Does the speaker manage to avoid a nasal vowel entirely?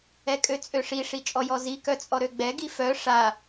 yes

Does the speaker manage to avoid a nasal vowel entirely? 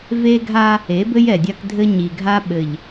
yes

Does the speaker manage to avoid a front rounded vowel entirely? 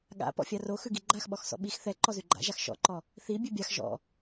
yes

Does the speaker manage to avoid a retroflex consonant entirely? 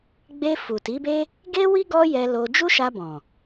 yes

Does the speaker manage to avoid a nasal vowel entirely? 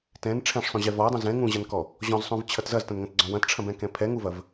no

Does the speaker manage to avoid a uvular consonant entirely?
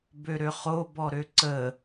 no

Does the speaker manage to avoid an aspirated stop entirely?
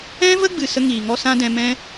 yes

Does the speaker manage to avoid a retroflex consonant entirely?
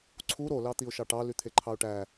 no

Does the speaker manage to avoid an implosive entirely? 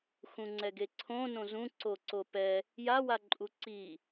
yes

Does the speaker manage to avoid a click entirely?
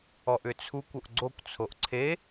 no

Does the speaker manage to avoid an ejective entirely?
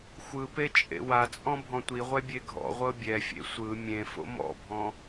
no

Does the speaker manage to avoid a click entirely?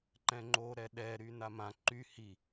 no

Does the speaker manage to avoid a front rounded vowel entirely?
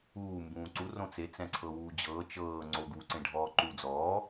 yes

